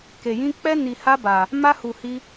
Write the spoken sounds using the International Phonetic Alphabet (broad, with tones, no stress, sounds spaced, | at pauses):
k e˧ j ĩ˦ k͡p ɛ˦ n i˧ h a˦ b a˧ | m a˦ h u˧ h i˦